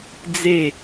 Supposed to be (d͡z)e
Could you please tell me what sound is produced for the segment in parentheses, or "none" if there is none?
d͡z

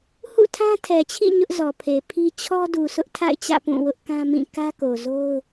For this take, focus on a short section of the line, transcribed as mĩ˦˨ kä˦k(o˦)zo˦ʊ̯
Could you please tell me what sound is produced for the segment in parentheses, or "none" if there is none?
o˨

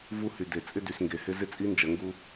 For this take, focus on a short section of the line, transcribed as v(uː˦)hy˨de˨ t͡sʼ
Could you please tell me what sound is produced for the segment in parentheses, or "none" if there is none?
u˦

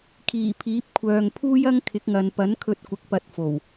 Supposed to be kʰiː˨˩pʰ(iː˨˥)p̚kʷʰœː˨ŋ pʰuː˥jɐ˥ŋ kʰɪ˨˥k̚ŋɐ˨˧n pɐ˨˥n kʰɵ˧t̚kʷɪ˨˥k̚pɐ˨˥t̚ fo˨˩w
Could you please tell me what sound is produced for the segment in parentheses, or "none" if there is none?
iː˨˥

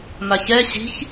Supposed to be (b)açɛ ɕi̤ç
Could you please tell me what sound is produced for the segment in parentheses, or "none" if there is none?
m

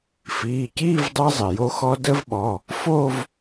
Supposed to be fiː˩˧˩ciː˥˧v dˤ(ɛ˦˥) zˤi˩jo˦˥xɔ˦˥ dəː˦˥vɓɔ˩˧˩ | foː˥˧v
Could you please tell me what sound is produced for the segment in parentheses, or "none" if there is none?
ɛ˦˥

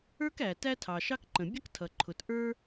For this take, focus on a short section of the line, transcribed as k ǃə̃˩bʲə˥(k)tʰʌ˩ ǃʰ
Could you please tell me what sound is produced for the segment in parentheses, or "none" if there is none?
k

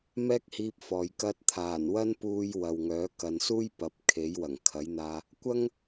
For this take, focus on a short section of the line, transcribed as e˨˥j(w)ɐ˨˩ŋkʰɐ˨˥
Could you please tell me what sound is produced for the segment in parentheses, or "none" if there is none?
w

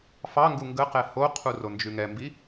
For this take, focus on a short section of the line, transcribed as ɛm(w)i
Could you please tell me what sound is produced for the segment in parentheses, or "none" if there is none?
b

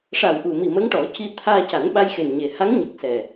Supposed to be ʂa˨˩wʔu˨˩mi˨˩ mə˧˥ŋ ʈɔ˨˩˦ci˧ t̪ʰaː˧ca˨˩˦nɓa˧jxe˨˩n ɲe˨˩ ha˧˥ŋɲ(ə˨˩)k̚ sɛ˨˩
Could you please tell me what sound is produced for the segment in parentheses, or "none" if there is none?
ə˨˩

